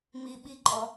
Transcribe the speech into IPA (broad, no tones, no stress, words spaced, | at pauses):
mi ɓiǃʼɔ